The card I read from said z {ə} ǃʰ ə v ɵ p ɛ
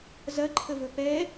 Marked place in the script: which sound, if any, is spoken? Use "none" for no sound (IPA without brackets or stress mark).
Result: ɐ